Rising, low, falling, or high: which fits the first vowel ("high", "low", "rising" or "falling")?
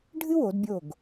high